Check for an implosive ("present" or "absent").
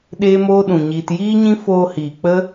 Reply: present